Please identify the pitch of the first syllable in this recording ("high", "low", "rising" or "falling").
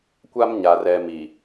high